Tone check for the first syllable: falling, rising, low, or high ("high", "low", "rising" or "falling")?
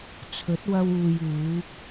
rising